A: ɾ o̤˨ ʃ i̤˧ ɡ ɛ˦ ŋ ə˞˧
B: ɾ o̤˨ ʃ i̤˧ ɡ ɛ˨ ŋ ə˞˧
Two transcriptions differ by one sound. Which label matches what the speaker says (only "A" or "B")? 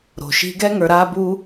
A